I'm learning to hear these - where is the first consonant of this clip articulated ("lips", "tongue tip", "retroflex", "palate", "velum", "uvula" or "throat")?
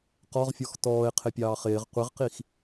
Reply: uvula